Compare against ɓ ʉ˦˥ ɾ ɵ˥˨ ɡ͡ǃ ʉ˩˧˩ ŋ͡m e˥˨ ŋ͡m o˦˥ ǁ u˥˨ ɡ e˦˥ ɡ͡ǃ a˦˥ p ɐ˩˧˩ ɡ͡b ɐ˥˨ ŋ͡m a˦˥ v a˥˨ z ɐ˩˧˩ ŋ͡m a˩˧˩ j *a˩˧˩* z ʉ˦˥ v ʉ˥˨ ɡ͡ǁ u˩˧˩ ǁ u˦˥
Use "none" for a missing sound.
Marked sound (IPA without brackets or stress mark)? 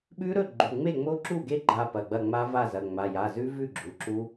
a˩˧˩